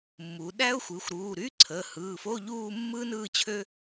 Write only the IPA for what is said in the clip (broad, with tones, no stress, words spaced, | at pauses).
mːu˩˧ ɗæ˥ʊ̯xʷɯ˩˧˩xʷɾuː˩˧˩ ɾy˧˥˧ǀʰəː˩˧˩hɯː˩˧˩fo˧˥˧ ʎuː˥˧ mːɯː˥nɯː˥˧t͡ɕʰø˥